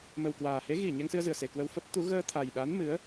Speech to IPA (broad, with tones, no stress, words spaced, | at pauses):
mə˨˩wkwaː˨˩he˨˦ ɣi˧˩ ɲɛ˧ŋsɨ˧ə̯zɨ˨˩ə̯se˨˩ kwə˧wfə˦˥p̚ t̪u˨˦ ɣəː˧t̪ʰa˨˩jɗa˨˦n mɨ˨˦ə̯